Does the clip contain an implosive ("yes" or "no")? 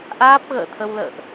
no